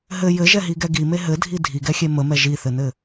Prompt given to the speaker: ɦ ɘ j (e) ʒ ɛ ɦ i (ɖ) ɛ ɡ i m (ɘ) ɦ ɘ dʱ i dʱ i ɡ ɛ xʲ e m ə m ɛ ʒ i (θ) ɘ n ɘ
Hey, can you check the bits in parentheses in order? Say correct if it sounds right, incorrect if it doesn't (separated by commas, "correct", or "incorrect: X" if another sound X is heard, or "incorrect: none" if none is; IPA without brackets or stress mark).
incorrect: ɘ, incorrect: ɡ, incorrect: e, correct